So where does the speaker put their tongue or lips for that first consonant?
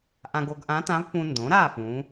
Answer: throat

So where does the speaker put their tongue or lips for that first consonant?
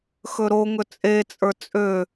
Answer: velum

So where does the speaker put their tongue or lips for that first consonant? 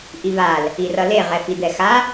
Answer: throat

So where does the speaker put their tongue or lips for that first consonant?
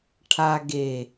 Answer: retroflex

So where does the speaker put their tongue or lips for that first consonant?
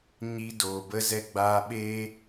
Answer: palate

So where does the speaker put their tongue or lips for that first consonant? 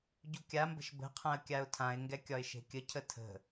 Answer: palate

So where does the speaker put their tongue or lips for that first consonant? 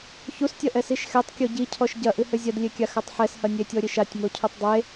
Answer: palate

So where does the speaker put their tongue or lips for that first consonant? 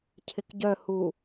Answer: palate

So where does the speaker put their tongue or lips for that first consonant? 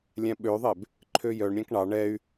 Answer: tongue tip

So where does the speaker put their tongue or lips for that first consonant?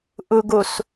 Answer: throat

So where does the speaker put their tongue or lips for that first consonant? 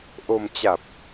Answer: throat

